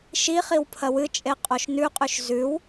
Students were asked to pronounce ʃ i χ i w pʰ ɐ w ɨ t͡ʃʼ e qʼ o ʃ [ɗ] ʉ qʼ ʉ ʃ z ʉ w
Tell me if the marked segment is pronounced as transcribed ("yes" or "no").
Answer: no